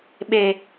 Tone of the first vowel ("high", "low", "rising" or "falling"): low